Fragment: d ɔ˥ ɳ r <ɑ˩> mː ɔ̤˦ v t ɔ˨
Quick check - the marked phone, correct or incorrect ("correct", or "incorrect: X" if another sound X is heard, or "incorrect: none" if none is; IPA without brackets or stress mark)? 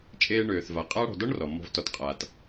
incorrect: ɔ˩